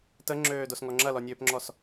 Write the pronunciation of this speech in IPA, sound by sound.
t ə ŋ͡ǁ øː d o s ŋ ɔ ŋ͡ǁ ɐ l ɔ nʲ øː p ŋ͡ǁ ɔ s

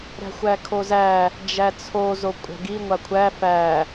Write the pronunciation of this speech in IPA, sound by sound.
ɾ æ̤ xʷ æ kʰ o z æ | d͡ʒ æ t͡sʰ o z o kʷʼ æ̤ ɡ i ŋʷ a kʷʰ æ f æ

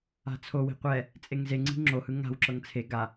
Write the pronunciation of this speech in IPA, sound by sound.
a̤ t͡sʰ o w i̤ qʷ ɛ | t͡sʼ e ŋ z e ŋ͡ǀ i̤ ŋ͡ǁ o h ɯ ŋ a̤ w ǁ ɤ ŋ t͡sʰ e ɡ a

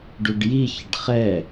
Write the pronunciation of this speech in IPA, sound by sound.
ɖ u ɖ j i ç ə ɖ χ ɛ

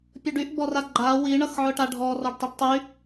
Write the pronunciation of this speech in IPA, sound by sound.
pʲ ʊ ɖ y ʔ b ɔ r a ɡ͡ǃ a w i ɳ ʌ x ʕ ʊ ʈ a ɖʱ ɔ r ɔ ɖ tˤ y ɖ tˤ y

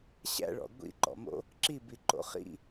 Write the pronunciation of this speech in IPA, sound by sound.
ɕ æ̰ ɭ ɔ̰ ɡʷ ḭ ǃ ɔ̰ m o̰ | ǁ i b i ǃ o̰ χ ḭ

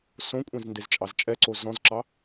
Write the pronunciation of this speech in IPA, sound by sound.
s õ kʷʼ ẽ z n d e z t͡ʃʼ ɑ z t͡ʃʼ ɛ ǀ o z ɔ̃ z ǁ ɑ

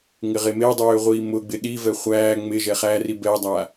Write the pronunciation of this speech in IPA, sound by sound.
ŋ ɪ ʁ e m e dˤ øː ʁʷ iː m ʊ ɡ͡b ɪ ɗ i v ɛ χʷ æː ŋ͡m ɪ ʒ ɛ χ æ r i b ɛ dˤ a

